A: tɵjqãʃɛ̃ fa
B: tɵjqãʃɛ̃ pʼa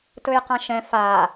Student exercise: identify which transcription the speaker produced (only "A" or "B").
A